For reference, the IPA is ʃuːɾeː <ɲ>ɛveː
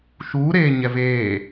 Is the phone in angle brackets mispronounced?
no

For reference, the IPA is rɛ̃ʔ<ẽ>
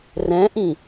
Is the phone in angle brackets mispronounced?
yes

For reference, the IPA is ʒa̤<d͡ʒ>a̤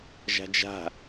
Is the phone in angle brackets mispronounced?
no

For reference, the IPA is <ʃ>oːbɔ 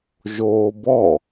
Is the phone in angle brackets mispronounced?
yes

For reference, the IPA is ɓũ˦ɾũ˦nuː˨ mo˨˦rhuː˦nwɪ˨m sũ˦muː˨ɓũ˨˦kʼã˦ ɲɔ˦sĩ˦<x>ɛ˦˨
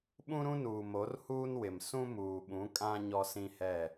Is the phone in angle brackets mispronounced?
yes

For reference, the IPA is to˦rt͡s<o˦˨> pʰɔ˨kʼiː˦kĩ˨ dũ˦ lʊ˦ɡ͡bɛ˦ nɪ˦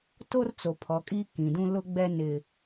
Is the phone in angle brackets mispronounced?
yes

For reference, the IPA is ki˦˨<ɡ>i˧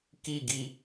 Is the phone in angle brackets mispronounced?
no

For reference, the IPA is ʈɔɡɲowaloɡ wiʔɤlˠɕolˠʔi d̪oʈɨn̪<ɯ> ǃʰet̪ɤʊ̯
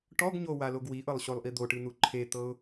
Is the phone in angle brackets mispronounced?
yes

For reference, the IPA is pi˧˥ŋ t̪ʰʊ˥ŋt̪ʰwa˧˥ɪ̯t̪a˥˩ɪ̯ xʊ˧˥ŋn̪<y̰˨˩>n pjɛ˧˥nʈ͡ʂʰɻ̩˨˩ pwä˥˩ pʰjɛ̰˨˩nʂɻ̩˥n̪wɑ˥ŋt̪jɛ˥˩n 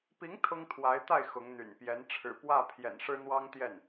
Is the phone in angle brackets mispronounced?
no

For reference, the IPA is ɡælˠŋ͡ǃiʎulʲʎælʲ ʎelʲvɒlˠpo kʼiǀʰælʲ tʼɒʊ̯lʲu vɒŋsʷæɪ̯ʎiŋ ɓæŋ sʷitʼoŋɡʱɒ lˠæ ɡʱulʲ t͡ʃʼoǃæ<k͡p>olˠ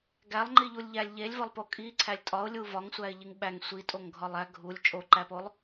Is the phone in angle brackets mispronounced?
yes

